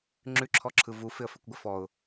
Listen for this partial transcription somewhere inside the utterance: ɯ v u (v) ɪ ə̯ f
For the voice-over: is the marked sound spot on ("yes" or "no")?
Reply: no